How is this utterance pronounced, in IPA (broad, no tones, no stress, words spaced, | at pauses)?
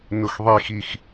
nʊxðˤixix